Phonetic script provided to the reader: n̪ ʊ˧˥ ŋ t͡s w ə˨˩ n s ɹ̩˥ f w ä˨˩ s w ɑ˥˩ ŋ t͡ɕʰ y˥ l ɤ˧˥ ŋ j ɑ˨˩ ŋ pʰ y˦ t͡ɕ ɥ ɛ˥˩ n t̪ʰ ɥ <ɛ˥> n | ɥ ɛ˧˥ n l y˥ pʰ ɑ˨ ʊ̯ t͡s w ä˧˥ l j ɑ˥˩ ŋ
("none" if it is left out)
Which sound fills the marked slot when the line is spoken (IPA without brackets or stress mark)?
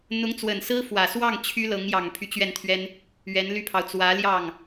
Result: ɛ˥